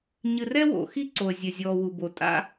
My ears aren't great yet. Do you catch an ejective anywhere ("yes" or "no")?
yes